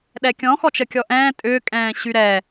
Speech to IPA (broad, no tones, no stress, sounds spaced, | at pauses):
ɗ ɛ kʲ ɔ̃ x ɔ t͡ʃ ə kʲ ɔ ʔ ɛ̃ː tʼ ʏː kʼ ɛ̃ː ɕ y ɾ ɛ